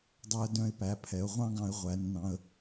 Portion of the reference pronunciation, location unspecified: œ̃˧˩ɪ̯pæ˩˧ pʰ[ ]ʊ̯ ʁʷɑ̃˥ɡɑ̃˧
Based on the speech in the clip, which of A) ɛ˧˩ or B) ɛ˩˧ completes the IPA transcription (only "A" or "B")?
B